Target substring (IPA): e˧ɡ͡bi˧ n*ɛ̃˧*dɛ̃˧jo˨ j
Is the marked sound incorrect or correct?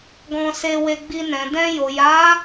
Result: incorrect